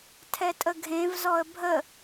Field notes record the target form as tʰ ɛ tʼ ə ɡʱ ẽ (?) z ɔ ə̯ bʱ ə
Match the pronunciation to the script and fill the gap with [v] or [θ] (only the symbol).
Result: v